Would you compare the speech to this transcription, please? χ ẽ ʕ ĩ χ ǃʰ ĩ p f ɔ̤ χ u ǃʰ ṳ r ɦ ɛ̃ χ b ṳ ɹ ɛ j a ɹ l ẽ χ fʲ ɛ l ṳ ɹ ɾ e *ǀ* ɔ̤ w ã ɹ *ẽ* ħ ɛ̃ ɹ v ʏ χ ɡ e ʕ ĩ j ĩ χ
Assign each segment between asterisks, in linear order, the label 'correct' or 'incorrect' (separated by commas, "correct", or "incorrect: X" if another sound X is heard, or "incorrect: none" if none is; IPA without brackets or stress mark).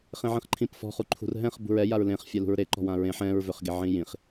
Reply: incorrect: ǃ, correct